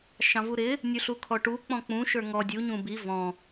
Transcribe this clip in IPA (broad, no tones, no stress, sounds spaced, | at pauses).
ʃ ɑ̃ v u ɾ ɪ | nʲ u ɬ u kʰ ɔ ʈ u k͡p ɔ̃ k͡p ũ ʃ ə˞ ŋ ɔ dʲ u ɲ ũ b i v ɔ̃